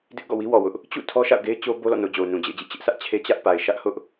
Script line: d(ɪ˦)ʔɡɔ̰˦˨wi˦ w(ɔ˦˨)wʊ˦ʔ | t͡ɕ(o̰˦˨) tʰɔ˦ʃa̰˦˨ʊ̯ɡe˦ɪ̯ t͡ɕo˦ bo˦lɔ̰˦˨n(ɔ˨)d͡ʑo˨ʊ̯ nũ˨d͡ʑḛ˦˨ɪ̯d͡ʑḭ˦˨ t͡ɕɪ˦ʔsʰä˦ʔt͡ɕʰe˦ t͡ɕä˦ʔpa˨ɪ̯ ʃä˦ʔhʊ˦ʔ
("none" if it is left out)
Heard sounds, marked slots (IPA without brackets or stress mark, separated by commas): ɪ˦, ɔ˨, ṵ˦˨, o˨